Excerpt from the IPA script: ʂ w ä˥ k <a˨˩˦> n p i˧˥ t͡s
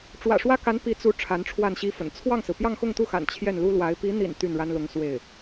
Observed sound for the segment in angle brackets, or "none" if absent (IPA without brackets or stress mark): a˧˥